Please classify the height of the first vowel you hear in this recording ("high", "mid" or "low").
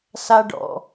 low